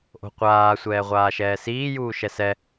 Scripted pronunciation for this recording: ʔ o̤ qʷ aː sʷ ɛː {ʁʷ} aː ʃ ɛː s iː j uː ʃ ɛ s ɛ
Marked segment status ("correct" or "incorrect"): correct